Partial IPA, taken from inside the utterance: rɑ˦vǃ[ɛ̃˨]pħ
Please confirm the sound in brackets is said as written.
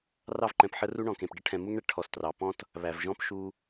yes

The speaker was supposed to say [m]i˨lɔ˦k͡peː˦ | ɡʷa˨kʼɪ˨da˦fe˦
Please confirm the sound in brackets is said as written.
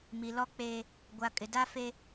yes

